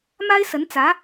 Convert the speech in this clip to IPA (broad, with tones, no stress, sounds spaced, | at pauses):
m a˥ ɪ̯ s ə˧˥ n t͡s ä˧˥